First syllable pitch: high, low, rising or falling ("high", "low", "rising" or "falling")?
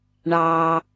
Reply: low